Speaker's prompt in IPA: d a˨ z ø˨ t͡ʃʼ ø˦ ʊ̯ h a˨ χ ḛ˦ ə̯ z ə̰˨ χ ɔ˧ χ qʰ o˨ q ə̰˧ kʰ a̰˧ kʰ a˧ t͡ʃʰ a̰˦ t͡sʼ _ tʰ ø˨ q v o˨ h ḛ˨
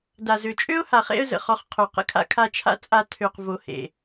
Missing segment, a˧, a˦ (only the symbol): a˧